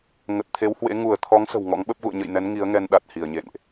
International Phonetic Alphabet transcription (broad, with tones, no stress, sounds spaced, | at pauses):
ŋ ə˨˩ t̚ t̪ʰ e˨˦ w h w ḛ˧˥ ŋ u˧˩ ə̯ t̪ʰ ɔ˨˦ ŋ s ə̤˨˩ w ŋ ɔ̰˧˥ ŋ ɓ ə˦˥ p̚ ɣ ṵ˧˨ ə̯ ɲ ə̰˧˨ j n ɛ˨˦ n ŋ i˨˦ ə̯ ŋ ɛ˧ n ɗ a˨˩ t̚ h i˧˩ ə̯ ɲ ḛ˧˨ n ʔ